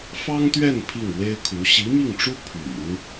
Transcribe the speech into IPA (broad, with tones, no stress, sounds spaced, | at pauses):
f ɑ˥ ŋ t̪ ɥ ɛ˥˧ n pʰ i˥˩ ŋ w e˥ ɪ̯ kʰ u˧˥ ɕ i˧˥ m i˥˩ ŋ ʈ͡ʂ u˥ pʰ y̰˨˩˦ n